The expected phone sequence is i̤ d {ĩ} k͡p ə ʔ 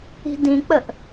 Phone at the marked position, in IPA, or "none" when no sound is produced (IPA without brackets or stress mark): ĩ